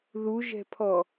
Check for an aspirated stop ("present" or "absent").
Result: present